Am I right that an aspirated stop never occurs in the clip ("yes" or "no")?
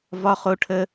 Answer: no